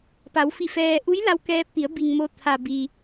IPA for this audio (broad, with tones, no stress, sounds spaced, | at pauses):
p a˩˧ w f i˧˩ f ɛː˧ ʔ u˧˥ j l a˧ w k ɛː˧ p̚ t̪ i˩˧ ə̯ b i˩ ŋ m o˩ t̪ʰ a˩ b i˩